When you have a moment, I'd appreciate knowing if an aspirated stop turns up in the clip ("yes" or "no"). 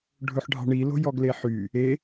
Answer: no